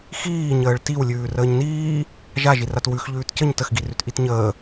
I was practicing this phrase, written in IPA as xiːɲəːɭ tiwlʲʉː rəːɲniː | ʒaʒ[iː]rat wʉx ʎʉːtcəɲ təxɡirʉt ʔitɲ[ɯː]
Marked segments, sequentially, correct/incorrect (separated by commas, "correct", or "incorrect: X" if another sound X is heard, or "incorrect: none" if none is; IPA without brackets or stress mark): incorrect: i, incorrect: əː